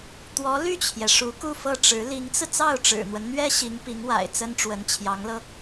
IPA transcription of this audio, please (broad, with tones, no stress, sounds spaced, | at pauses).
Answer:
t̪ w ɔ˧˥ l y˥˩ t͡ɕʰ j ɛ˩ ʂ u˧˥ k u˥˧ f ɤ˥˩ ʈ͡ʂ ɻ̩˧˥ l i˧˥ ŋ t͡s ɹ̩˧ t͡s ɑ˥˩ ʊ̯ ʈ͡ʂ ɻ̩˨˩ n̪ w ə˦ n n̪ ɥ ɛ˥ ɕ i˧˥ ŋ p i˧˥ ŋ w a̰˨˩ ɪ̯ t͡s ə˥ n ʈ͡ʂ w ə˧˥ n t͡ɕʰ j ɑ˧˥ ŋ l ɤ˧